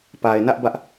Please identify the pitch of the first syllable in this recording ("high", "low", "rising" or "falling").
low